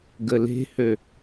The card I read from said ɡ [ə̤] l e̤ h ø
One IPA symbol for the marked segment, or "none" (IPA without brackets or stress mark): ə